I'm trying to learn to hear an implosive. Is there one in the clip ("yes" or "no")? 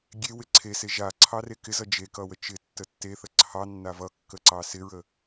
no